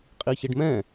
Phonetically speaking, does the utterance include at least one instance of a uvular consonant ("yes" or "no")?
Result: yes